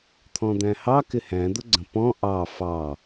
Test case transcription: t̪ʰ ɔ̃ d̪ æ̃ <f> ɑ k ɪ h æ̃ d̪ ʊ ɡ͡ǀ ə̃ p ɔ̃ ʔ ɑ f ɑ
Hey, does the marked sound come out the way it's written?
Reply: no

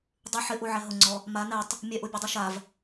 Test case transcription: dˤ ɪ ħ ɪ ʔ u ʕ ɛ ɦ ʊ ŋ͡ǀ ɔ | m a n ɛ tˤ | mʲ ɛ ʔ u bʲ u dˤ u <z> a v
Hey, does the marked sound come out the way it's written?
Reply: no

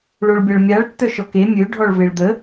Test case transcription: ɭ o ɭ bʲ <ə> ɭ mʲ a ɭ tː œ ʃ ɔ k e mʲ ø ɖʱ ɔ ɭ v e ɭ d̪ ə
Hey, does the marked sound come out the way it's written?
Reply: no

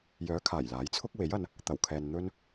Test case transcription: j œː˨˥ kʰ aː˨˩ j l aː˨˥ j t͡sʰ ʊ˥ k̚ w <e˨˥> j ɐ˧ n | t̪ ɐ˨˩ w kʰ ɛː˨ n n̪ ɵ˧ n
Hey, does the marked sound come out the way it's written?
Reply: yes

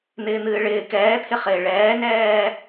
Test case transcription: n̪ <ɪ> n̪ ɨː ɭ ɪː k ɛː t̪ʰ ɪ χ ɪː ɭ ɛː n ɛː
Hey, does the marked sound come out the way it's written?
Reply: no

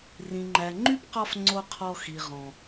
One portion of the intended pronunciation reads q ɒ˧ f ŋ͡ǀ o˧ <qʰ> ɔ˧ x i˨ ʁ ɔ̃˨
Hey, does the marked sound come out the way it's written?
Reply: yes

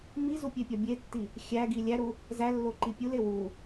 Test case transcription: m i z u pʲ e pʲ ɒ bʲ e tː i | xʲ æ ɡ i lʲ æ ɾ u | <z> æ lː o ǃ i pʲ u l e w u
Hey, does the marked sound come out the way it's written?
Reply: yes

